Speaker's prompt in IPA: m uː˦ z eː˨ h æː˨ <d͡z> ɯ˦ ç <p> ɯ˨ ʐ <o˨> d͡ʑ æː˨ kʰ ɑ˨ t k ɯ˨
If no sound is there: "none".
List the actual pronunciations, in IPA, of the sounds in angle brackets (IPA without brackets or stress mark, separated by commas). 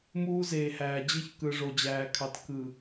d͡ʑ, k, o˨